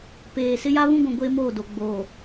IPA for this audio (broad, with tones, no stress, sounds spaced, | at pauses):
p eː˨ s ɪ˦ j a˦ β ũ˦ ɡʷ ũ˨ ɡʷ eː˦ m oː˦˨ d o˨ ɡ͡b oː˨